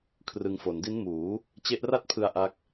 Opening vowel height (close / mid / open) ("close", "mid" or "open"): close